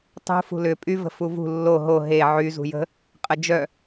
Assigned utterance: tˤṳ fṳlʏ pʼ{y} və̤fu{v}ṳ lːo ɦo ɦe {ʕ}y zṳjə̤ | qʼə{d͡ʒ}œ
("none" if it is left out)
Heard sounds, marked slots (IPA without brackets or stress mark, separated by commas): y, v, ʕ, d͡ʒ